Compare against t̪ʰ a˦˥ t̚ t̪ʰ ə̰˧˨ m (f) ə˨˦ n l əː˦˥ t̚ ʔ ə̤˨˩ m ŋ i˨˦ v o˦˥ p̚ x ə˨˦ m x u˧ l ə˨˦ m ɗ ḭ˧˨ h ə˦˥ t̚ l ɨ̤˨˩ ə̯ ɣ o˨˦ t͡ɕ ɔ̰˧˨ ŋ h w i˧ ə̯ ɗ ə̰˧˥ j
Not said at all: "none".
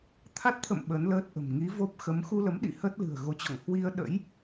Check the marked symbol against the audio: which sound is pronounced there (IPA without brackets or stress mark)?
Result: ɓ